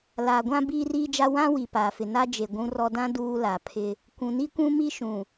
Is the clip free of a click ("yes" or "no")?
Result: yes